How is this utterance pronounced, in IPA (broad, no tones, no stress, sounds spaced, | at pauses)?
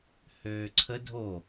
h øː ǀʰ ə dʱ o